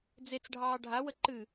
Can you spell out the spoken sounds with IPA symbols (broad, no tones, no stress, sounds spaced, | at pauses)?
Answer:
d͡z e t͡s ɖʱ ɑː ɖʱ a w ə ǃ ɨ